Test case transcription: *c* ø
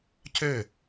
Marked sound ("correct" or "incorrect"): correct